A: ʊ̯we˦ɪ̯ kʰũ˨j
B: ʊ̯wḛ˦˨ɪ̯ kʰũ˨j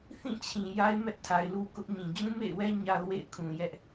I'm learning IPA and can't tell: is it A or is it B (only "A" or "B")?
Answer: B